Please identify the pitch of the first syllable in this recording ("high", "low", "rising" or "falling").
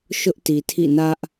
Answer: high